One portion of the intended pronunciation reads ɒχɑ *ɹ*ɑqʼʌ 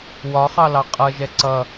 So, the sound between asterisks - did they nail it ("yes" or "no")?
no